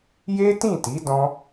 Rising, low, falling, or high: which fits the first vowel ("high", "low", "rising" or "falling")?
high